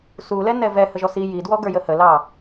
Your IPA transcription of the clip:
s u l ɛ n ɛ v ɛ h ə ʒ ɔ s i j i d w ɔ ɡ ə˞ j ə h ə l ɑ

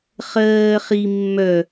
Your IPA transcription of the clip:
χ ɜː χ i mː œ

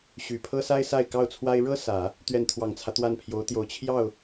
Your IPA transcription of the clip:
ɕ y˨˩ pʰ ɤ˥ s a˥ ɪ̯ s a˥˧ ɪ̯ k ɑ˥˩ ʊ̯ t͡sʰ w a˥ ɪ̯ ɻ ɤ˥ s ä˨˩˦ | t̪ ɥ ɛ˥˩ n t̪ʰ w ɑ˨˩ ŋ t͡sʰ ä˦ t̪ w a˥˩ n pʰ j o˧˥ ʊ̯ t̪ j o˨˩ ʊ̯ t͡ɕʰ j ɑ˥˩ ʊ̯

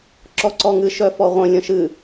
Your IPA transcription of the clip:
ǁ ɔ ǀ ɔ ŋ ɨ ʃ œ f ɔ ʁʷ ə̃ lʲ ə̃ ʃ ɨ

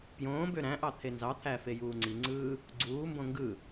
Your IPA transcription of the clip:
p j õː b ø ɾ æ̃ ʔ ɑ t̪ʰ e n z ɑ t̪ʰ æ f e j uː ŋ͡ǀ i ŋ͡ǀ ɯː | ɡ͡ǀ uː m b õ ŋ ɡ ɯ

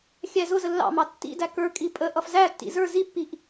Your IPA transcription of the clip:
xʲ æ z ʊ z ə lː ɑ̰ m ɑ tː ḭ d æ k ə˞ kʼ i pʼ ə ʔ ʌ f z æ tː ḭ z ə˞ z i pː i ʔ

